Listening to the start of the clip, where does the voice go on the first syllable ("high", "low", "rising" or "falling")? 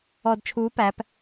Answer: low